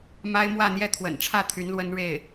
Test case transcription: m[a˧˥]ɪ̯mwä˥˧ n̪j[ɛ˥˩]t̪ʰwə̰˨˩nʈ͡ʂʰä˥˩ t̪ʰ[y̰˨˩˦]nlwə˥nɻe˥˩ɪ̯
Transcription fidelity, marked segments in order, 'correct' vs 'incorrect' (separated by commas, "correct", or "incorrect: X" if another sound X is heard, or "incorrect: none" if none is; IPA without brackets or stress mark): incorrect: a˥, correct, incorrect: y˧˥